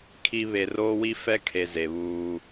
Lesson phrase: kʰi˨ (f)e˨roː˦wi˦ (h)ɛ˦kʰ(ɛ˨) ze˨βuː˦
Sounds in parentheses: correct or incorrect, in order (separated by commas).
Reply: incorrect, incorrect, incorrect